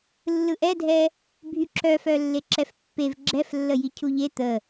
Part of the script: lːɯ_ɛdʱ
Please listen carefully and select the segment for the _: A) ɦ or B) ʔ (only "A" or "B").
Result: B